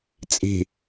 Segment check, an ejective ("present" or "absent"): present